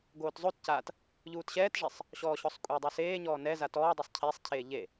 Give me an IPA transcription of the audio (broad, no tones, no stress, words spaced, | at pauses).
ɡoːtzˤotcaːt | ʎuːtɕɛːtʐesˤ | ɕɔːɕɔsˤkʷʼedˤo seːɲɔː nɛ zatɔːdˤosˤ cʰesˤcʰeː ʎe